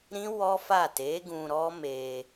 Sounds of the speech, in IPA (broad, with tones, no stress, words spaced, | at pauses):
ɾĩ˦ wɔ˦fa˦˨ te˨˦ɡũ˧ ɾɔ˦ me˧